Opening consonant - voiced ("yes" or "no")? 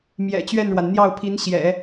yes